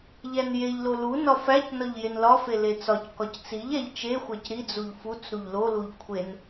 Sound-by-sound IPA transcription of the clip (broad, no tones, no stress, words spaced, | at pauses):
ʎænjeʎlo lunɒ fæcnɒʎ jenlɒfe let͡sɒckɒc t͡siʎæʎ t͡ʃexʷæc ɾid͡zuʎ fut͡s ɾuʎloluʎ kʷʰen